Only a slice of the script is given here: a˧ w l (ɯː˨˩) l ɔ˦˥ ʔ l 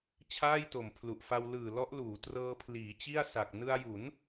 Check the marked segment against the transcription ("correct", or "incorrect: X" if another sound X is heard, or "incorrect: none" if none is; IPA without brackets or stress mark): correct